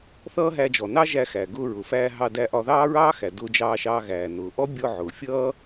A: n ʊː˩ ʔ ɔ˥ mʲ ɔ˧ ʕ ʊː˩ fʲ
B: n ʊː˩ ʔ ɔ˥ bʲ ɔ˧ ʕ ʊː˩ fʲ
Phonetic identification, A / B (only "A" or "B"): B